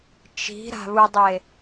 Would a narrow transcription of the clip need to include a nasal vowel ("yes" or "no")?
no